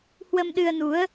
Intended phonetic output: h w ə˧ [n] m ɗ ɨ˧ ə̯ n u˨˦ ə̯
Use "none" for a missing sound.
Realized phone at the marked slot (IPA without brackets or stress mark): none